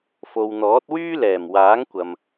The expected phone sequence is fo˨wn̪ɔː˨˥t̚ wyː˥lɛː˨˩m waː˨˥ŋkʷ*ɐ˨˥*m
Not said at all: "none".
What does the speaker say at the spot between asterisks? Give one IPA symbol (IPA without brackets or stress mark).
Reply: ɐ˨